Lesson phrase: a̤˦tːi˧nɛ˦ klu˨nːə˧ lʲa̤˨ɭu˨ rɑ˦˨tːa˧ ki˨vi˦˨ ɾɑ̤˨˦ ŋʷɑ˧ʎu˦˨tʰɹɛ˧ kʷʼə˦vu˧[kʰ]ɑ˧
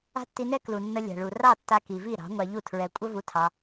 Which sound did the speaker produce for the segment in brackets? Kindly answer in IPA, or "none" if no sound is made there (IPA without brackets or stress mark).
tʰ